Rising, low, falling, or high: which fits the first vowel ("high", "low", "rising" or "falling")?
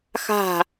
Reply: falling